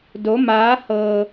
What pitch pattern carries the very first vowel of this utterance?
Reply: rising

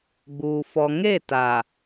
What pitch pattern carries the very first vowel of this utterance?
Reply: low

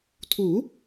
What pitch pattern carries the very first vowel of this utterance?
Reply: rising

